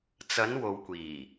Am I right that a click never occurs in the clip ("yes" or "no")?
yes